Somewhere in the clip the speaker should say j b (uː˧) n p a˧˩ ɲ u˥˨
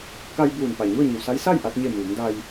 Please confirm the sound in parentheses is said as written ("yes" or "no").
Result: no